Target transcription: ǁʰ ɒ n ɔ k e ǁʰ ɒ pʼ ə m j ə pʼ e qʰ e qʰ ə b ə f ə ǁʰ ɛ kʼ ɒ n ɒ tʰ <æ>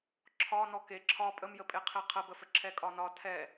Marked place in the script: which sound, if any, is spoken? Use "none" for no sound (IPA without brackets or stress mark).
ɛ